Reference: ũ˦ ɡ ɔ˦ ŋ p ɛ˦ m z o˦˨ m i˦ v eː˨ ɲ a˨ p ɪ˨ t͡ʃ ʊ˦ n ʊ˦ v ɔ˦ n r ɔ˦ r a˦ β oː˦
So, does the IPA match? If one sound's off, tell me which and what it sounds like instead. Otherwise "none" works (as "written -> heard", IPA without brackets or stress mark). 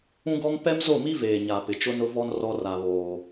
none